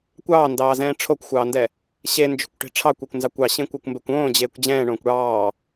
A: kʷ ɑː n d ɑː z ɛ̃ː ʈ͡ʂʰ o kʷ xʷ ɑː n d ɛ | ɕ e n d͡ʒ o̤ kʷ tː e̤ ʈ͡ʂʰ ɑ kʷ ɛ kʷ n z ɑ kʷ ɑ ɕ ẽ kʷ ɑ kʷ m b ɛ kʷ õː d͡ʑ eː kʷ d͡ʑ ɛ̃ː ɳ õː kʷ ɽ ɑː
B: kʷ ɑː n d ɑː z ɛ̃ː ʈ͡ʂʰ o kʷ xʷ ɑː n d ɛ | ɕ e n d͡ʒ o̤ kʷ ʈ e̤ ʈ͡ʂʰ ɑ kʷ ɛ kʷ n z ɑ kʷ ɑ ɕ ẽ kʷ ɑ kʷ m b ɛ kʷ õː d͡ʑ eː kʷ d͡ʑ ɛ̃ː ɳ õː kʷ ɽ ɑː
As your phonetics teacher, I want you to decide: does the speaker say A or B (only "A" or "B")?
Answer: B